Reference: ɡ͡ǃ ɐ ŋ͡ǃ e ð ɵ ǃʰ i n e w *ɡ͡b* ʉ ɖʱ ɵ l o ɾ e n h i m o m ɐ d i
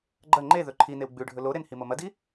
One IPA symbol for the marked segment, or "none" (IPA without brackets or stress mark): ɡ͡b